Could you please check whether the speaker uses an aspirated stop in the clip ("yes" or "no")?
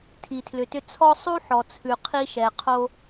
yes